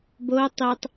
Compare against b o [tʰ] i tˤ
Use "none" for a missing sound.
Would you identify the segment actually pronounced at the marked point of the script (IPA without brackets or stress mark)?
tˤ